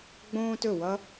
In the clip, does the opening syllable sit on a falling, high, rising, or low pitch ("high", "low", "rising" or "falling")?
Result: high